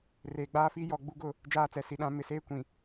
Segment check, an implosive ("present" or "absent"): present